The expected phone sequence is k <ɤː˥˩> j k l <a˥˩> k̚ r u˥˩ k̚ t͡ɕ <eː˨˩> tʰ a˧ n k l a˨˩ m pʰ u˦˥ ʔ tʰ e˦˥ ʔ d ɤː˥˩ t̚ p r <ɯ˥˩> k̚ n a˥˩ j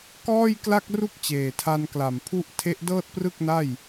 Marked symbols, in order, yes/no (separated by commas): no, yes, yes, yes